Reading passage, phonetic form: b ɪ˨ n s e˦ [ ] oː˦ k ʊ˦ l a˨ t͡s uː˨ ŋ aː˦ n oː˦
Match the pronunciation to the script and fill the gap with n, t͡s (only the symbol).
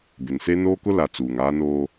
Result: n